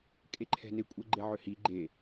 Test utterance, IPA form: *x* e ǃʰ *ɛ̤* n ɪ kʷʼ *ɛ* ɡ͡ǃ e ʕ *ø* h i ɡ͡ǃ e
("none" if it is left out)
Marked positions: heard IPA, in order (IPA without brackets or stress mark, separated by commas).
kʼ, ɛ̤, ɛ, ø